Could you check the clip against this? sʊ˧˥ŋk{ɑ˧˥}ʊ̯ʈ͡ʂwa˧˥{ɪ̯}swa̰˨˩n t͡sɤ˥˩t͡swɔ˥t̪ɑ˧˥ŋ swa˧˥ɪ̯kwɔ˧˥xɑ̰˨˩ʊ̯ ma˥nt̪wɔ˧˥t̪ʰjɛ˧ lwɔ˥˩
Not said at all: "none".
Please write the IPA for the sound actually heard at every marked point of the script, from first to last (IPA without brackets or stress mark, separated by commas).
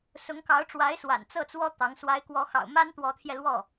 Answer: ɑ˧˥, ɪ̯